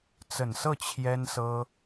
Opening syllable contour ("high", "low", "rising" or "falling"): low